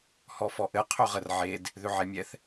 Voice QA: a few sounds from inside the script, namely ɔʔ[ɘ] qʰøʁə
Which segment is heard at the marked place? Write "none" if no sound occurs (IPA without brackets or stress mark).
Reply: ɘ